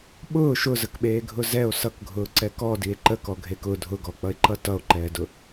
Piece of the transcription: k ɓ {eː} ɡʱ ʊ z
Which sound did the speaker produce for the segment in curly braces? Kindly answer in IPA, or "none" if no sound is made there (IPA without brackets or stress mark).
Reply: eː